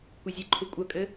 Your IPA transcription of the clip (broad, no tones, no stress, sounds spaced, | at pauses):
kʷ i zʲ ɨ ǃʰ u kʷʼ ɐ kʼ ɘ